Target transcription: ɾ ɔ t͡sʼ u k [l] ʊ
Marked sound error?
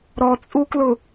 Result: no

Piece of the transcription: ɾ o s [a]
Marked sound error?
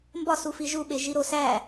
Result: yes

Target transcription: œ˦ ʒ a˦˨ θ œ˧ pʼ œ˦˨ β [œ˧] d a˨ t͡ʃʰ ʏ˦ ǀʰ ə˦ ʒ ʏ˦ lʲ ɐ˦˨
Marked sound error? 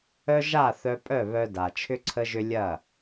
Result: no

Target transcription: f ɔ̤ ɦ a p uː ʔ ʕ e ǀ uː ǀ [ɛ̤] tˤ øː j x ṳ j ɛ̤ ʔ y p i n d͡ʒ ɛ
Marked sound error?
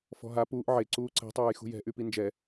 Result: no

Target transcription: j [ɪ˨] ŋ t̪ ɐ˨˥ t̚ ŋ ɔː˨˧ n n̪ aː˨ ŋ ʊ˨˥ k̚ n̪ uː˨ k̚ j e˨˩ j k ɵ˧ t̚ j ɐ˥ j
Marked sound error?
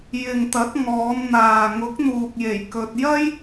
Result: no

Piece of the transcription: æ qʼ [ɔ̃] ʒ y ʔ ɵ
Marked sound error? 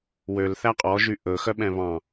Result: yes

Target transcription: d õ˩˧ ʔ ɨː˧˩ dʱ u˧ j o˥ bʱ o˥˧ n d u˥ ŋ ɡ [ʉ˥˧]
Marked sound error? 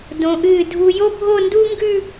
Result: no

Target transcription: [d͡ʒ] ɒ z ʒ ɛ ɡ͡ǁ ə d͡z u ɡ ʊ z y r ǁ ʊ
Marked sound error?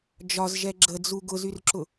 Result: no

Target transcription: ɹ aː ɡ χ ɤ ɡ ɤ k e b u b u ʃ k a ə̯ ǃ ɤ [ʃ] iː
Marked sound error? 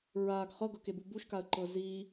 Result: yes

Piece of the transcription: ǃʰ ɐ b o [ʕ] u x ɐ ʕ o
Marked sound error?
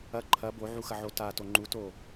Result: no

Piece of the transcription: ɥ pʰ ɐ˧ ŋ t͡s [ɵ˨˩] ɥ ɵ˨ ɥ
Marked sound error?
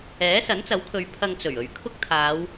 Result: no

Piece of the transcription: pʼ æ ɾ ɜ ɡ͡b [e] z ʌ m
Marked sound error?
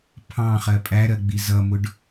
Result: yes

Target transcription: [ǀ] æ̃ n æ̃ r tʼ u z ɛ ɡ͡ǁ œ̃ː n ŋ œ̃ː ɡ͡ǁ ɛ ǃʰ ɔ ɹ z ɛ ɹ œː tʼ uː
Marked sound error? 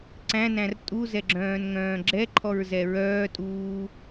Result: no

